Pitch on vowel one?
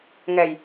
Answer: low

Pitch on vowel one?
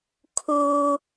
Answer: high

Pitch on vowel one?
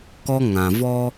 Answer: high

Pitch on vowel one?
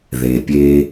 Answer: low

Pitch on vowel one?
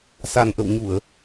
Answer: low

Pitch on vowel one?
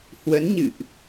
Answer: rising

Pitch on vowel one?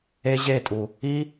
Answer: high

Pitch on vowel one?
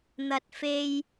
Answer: low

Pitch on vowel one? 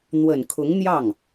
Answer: low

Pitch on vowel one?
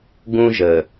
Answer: high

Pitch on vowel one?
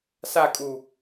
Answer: falling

